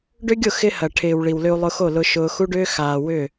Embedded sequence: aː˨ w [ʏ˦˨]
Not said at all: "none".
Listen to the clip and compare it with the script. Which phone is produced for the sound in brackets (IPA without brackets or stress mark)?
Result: ʏ˦˨